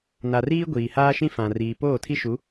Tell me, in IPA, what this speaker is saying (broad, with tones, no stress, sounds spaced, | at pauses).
n a˨ r iː˦ ɡʷ iː˨ h aː˦ ʃ ĩ˦ f ã˨ r iː˨ p oː˦˨ tʰ i˦ ʃ u˨˦